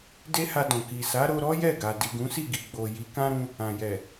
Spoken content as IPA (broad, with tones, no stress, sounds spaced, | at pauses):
d e˦ h a˧ d ɔ̃˨ k i˨ s a˨˦ ɾ o˧ ɾ ɔ˦ j ɛ˦˨ ɡ a˨ d i˨ ɡ ũ˨˦ s i˦˨ ɡ i˨ ɡ͡b o˨ j i˨˦ k ã˦ ɾ ũ˧ | ã˨ j ɛ˨